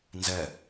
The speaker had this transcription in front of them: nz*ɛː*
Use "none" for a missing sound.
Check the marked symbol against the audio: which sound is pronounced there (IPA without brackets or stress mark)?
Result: ɛ